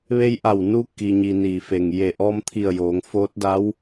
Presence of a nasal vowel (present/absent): absent